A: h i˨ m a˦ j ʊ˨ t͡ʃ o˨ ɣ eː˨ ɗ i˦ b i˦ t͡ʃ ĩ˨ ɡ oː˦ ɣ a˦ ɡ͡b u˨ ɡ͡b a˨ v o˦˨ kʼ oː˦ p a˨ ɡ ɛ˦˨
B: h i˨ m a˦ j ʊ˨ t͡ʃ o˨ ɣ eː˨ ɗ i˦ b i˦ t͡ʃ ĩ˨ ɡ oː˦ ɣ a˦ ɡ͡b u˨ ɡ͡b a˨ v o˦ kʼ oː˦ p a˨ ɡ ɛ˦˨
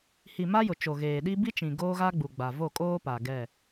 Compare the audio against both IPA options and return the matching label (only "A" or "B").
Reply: A